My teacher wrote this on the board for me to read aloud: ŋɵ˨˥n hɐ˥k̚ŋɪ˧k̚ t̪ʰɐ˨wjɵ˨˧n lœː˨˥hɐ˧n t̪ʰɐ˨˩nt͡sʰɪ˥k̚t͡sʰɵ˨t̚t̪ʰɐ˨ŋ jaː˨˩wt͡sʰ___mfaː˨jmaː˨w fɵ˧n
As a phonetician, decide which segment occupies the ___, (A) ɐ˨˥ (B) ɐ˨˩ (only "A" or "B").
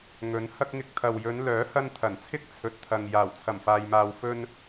B